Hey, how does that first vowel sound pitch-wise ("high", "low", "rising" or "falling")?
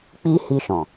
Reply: high